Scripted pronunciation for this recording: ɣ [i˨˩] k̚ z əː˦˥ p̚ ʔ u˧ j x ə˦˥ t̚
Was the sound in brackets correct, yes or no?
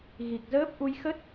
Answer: yes